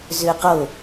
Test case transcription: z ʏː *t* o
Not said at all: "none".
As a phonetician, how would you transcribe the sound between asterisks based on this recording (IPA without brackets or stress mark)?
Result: q